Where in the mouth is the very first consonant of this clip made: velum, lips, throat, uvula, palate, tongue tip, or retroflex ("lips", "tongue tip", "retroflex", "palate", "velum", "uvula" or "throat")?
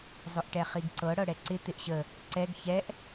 tongue tip